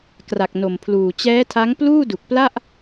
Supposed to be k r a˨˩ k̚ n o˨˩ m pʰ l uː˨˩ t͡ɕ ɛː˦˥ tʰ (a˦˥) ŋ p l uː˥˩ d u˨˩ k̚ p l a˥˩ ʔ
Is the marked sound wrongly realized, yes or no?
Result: no